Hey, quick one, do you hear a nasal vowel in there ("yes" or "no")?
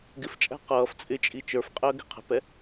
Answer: no